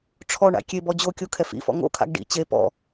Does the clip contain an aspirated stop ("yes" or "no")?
yes